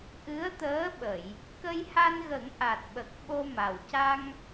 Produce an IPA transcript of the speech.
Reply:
ʔ ɨ˧˥ ə̯ t̪ əː˧˥ ɓ ə˨˩˨ j | k ə˧ j h a˧ n ɣ ə˨˩˦ ŋ ʔ a˨˩ t̚ ɓ ə˨˩ k̚ ɓ o˧ m a˨˩ w c a˧ ŋ

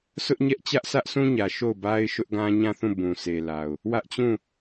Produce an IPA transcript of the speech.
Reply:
s ʊ˦ ʔ ɲ ɛ˦ ʔ t͡ɕ ä˦ ʔ sʰ ä˦ ʔ sʰ ũ˦ ɲ ä˨ ʃ o˦˨ ʊ̯ b a˦ ɪ̯ ʃ ʊ˦ ʔ ɡ ã˦ ɲ ã˦˨ θ ũ˦˨ b ũ˨ sʰ e˨ l a˨ ʊ̯ | w ä˦ ʔ t͡ɕ ũ˦˨

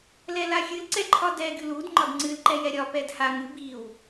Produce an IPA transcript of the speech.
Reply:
l ɛ l a xʲ ɨ l ǀ ɛ ǃʰ ɒ d ɛ ɡ ɨ l u d ŋ͡ǃ ɒ d ŋ͡ǀ ɨ l ǃ ɛ j ɛ ɾʲ ɒ p ɛ d h a ŋ ɨ b i w

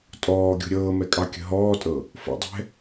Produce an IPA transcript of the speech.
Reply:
tʼ ɔː ɡʲ o̤ ɾʲ ɤː m ɛ kʼ ɑ kʲ ə̤ ɦ ɔː tʼ ɤ | f ə̰ dˤ ɛ̤

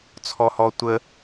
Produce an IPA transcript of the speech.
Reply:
t͡sʰ ɔ h ɔ tʷ ə

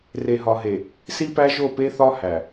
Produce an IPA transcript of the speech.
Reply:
r e˨ ɦ ɒ˨ ɦ e˨ | s i˦ p æ˦ ʒ o˦˨ p e˦ θ ɒ˦ h æ˨

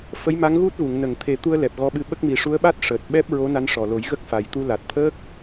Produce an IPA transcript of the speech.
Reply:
f ə˧˥ j m a˧˥ ŋ ɣ u˦˥ t̚ ɣ u˨˩˨ ŋ n ə˨˩˨ ŋ t̪ʰ e˨˩˦ t̪ u˧ ə̯ l ɛ˨˩ p̚ ɣ ɔ˧ ɓ ɨ˧ ɓ ə˦˥ k̚ m i˨˩ ʂ u˧˥ ə̯ ɓ a˦˥ t̚ ʂ əː˨˩ t̚ ɓ ɛ˦˥ p̚ ɹ o˧˥ n a˧ n ʂ ɔ˨˩ l o˨˩˦ j ɣ ə˦˥ k̚ f a˨˩ j t̪ u˧ l a˨˩ t̚ t̪ʰ əː˦˥ k̚

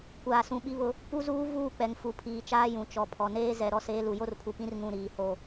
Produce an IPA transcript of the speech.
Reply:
kʷ aː˨ s ũ˨ ɓ i˦ β ʊ˦ | p u˦ z uː˦ v uː˦˨ k͡p ɛ˨ ŋ f u˨ pʰ iː˨ t͡ʃ aː˦ j ũ˨ t͡ʃ ɔ˨ pʰ ɔ˨ n eː˦ z ɛ˨ ɾ ɔ˦ s eː˦ l u˨ j o˦ r pʰ u˨ p ĩ˦ r ŋ ũ˦˨ ɾ iː˨ h o˦

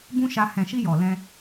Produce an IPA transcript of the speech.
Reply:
b ũ˦ ʃ a˧ h ɛ̃˨ ʃ i˧ j ɔ˨ l ɛ̃˧

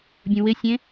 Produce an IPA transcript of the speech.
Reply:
bʲ ũ w ɪ sʲ ẽ

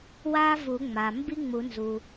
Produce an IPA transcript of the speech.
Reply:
w a˥ v u˨˩˦ ŋ͡m a˩ m b i˥ ŋ͡m u˨˩˦ n z u˩

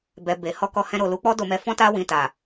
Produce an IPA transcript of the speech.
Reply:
b ɛ˨ b e˨ h ɔ˧ k ɔ˧ h ɛ̃˧ ɾ o˨ l u˨˦ k͡p ɔ˦ d o˧ m ɛ˧ f ɔ̃˦ t a˦ w ĩ˧ t a˨

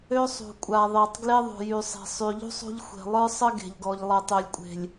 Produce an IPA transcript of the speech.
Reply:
ø˦ sˤ ṳ˨ kʷʼ a˨ ðˤ e˨ tˤ ɡ l e˦ ðˤ ṳ˨ j y˨ sˤ e̤˨ sˤ y˨ ʎ ṳ˦ sˤ ṳ˦ ʎ xʷ e̤˨ lˠ ə˞˦ sˤ ə˦ ɡ e̤˨ ʎ ɡ ɔ˨ ʎ lˠ e˨ tˤ ø˨ lʲ kʷʼ e̤˨ lʲ

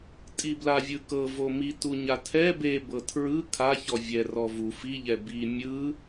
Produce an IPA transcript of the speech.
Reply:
tʼ i b l a vʲ ɯ k ɤ v o m i t u ɲ a tʰ ɛ b e b ɤ tʰ ɹ ɯ kʰ a ç ɔ vʲ ɛ r ɔ v u f i ʎ ɛ b i mʲ ɯ

